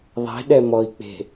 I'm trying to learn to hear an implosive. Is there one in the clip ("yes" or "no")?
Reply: yes